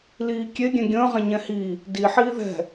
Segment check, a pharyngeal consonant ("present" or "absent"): present